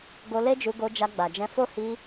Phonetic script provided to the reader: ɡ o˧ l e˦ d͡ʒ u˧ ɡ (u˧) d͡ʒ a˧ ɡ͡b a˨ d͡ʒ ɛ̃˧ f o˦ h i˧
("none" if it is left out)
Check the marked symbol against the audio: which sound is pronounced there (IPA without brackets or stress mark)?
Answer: o˧